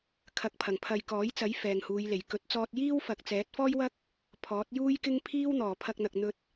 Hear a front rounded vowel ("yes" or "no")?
no